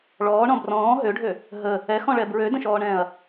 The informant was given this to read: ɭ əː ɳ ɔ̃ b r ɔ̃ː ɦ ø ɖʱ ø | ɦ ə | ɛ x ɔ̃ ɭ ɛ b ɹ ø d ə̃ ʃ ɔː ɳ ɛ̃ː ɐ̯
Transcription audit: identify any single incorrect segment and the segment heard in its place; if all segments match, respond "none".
əː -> ɔː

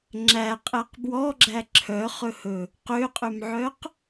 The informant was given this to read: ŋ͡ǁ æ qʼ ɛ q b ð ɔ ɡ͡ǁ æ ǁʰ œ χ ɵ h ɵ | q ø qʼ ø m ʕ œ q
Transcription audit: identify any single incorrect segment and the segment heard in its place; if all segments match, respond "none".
ð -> w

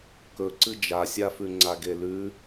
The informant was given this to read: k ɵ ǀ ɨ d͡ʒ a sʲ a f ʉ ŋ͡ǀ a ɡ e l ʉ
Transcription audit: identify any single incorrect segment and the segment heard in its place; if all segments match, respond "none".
none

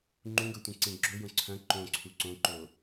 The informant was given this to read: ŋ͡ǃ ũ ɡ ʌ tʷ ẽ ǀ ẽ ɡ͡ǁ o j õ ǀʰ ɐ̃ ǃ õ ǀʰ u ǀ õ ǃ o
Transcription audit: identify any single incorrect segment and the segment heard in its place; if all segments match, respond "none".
none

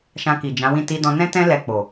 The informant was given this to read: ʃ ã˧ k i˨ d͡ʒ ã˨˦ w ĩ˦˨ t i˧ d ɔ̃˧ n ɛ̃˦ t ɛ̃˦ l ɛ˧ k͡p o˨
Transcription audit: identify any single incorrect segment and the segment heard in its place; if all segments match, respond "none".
none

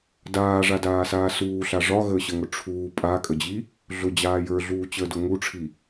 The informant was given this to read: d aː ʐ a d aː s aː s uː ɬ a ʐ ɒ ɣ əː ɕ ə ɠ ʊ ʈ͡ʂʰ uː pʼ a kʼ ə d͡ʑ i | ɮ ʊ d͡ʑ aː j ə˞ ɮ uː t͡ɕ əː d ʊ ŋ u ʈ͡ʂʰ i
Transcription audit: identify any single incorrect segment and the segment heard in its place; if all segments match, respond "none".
ɠ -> ŋ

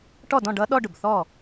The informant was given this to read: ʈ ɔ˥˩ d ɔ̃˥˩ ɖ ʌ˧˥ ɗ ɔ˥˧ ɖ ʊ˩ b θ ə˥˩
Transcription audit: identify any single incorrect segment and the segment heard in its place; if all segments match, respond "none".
ə˥˩ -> ɔ˥˩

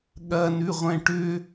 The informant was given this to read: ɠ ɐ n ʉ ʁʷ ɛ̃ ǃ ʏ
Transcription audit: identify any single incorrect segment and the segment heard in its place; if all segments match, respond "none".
ǃ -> ʈ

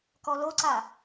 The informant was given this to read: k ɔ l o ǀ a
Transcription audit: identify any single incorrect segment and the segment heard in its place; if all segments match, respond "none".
none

